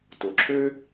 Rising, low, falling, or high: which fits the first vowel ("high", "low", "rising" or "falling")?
low